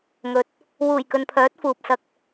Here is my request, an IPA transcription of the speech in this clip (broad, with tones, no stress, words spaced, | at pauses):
ŋɵ˨t̚ | wuː˨˩jkɵ˨npʰœː˨˥t̚ fuː˨p̚sɐ˧k̚